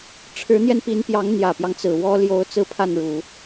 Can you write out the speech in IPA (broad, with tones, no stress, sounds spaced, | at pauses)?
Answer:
ʈ͡ʂʰ ɻ̩˧˥ n̪ j ɛ˧ n p i˧˥ n p j ɑ˧˥ ŋ n̪ j ä˨˩ p j ɑ˦ ŋ t͡s ɹ̩˨˩ w ɔ˥ l j o˧˥ ʊ̯ t͡s ɹ̩˥˧ pʰ a˥˩ n ɻ u˨˩˦